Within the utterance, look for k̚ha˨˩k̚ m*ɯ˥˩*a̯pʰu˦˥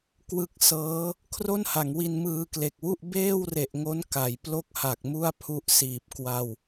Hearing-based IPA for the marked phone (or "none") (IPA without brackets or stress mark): u˥˩